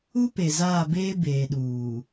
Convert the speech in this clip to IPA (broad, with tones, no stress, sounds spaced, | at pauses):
u˦ p e˨ z aː˦˨ b eː˦ b eː˨ ɗ uː˨